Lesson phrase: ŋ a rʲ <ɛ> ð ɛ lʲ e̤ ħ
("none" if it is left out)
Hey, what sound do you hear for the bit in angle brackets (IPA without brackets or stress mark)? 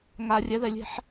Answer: ɛ